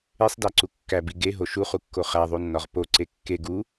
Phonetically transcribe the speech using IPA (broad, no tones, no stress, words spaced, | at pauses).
esˤdæǀu kːæbi ɡeɦo ʃuχukːo χæðˤunːɒʁ poǀe kːe ɡu